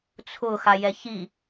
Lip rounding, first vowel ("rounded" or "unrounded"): rounded